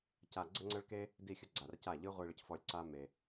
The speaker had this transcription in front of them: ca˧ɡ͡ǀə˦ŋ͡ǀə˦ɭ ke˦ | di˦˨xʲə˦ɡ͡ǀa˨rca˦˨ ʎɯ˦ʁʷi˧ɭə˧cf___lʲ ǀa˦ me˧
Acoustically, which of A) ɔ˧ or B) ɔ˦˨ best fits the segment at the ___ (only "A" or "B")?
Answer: A